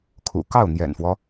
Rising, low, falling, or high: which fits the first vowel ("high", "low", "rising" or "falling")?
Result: low